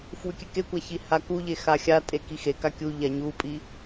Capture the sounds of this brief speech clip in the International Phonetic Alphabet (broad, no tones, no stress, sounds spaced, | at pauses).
f w ʉ kʲ ʉ k e kʷ a ç i h a k u ʎ e x a xʲ a tʼ e k i x e k a kʲ u ʎ a ɲ u pʼ i